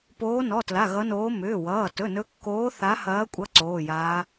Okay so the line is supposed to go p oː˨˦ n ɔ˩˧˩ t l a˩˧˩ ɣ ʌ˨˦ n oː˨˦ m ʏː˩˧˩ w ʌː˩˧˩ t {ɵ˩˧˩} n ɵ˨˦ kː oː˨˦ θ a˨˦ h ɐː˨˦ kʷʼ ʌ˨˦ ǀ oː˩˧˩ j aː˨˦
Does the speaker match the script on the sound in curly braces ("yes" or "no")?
yes